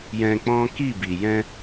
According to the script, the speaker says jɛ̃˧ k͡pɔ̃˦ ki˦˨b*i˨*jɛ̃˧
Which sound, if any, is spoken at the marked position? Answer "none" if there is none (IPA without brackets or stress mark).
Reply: i˨